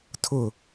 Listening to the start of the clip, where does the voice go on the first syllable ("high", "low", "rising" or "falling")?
falling